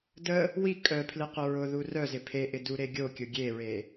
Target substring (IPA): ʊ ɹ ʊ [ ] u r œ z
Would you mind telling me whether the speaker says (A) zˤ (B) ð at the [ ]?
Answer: B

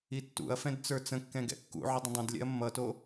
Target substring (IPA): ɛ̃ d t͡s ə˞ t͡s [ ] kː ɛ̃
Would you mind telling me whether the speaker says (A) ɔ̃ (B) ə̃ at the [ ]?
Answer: B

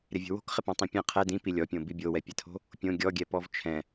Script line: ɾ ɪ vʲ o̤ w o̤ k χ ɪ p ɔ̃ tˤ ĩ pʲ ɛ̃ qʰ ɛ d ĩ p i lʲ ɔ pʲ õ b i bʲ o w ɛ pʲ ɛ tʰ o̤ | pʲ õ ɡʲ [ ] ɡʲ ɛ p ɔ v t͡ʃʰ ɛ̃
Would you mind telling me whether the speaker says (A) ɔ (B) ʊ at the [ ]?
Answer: A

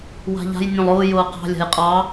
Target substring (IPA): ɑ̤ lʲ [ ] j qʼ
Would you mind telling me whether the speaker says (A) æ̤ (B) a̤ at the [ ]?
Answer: B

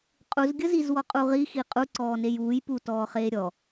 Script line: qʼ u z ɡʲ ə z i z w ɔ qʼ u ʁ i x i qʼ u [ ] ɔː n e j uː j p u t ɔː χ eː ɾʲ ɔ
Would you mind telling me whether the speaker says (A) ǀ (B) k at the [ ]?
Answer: A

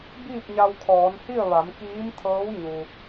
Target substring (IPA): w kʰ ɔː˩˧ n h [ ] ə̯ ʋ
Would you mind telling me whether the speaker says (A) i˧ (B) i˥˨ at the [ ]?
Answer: B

